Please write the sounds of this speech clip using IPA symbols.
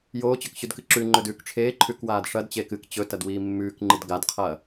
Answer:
joːt͡ɕɵkɕʉdkɨ ǁʉ ŋ͡ǃɵdʉːkʈ͡ʂʰeː ǃʰʉkwaːdʂɐdt͡ɕeːk ɨk t͡ɕɵ tɐdwiːmːʉːkŋ͡ǃɨd ɡadqʰɐː

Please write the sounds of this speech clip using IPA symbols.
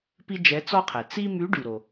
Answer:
pi˥d͡ʒɛ˧˥t͡sɔ˥qʰɛ˩ t͡si˥ my˧˥ɖy˩ɾo˩

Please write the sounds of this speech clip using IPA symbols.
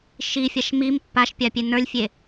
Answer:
ʃifʲaʃ mim pːaʃpʲapʲe nə˞lʲfʲe

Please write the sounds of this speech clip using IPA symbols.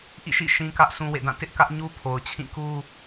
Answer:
ʔḭ˦˨ʃḭ˦˨ ʃĩ˦kä˦ʔ sũ˦wḛ˦˨dã˦˨ tɪ˦ʔkä˦ʔɲu˦ pʰo˨ʊ̯t͡ɕʰĩ˦˨ku˦

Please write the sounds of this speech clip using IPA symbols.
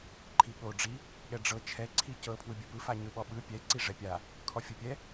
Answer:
ǃʰiɠo ɖ͡ʐi | ɠɛɖ͡ʐɤ t͡ʃʰɛ ǀʰicɤ pʰwɯbʲɯpɯ faɲɯɓɔɓɯ pʲɛ ǀiʐɛpʲa | kʰɔfʲopʲɛ

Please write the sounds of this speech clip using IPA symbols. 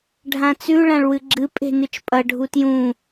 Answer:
ɖʱãt͡sʉ ɭãɭwɨɡ͡ǁɨ pʼe̤nɨt͡ʃpʼɐ ɖʱutjũ

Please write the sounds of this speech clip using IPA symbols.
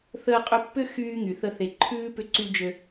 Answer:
θəː˧qʼʏ˧pːʏ˦ xyː˧ ŋy˨θə˧θe˨ǃʰʉː˦ pʏ˧ǀy˧d͡ʒø˧

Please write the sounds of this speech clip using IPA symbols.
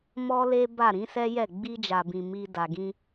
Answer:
mɔ˦le˦ba˦˨ ɾĩ˨˦sɛ˦jɛ˦˨ ɡ͡bi˧d͡ʒa˨bĩ˨ mi˧ da˨ɡĩ˧

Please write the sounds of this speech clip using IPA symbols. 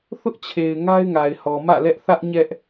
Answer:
θʊ˦ʔt͡ɕʰe˨ɪ̯ ŋa˦ɪ̯ŋa˨ɪ̯hɔ˨ mä̰˦˨lɛ˦ʔ θä˦ʔ ɲɛ˦ʔ

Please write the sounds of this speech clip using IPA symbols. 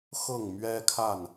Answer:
xɤ˥˨ŋ mɥɛ˦kʰa˥˨n

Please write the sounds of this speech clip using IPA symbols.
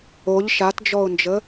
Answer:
oʎ ʃatd͡ʒɔʊ̯nd͡ʒə

